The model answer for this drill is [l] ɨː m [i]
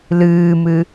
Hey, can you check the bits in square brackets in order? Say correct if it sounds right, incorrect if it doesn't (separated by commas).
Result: correct, incorrect